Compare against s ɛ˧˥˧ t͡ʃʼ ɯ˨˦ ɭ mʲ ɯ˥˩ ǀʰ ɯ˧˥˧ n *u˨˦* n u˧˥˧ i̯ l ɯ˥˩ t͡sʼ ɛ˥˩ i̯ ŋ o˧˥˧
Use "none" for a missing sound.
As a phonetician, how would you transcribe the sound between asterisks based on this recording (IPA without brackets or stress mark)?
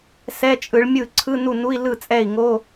u˥˩